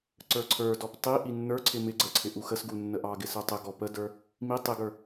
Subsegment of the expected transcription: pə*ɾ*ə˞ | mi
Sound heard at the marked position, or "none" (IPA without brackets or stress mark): d